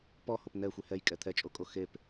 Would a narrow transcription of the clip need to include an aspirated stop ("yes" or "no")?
yes